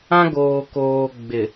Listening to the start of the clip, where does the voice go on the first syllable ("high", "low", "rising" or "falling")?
high